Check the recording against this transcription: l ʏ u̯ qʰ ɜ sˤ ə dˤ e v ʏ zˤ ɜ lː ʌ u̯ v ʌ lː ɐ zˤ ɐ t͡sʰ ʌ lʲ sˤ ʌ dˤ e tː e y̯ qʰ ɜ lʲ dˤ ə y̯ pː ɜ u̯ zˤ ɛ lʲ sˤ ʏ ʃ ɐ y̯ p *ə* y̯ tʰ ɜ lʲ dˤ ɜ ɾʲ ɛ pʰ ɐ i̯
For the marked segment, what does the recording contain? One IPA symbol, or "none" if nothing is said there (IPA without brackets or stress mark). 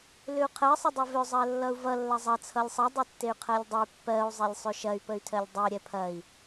ə